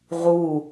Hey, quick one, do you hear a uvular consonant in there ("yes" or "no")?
yes